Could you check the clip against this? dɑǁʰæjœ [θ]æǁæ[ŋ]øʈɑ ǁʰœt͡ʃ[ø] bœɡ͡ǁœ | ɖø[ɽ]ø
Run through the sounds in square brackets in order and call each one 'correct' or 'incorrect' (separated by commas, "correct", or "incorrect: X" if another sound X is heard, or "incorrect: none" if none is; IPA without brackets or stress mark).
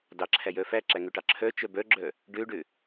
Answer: incorrect: f, correct, incorrect: œ, incorrect: ɖ